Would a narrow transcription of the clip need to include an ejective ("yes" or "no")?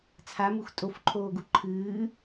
yes